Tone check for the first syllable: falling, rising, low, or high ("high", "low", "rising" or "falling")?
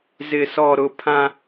low